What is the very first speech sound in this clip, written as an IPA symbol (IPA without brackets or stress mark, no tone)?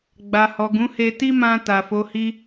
ɡ͡b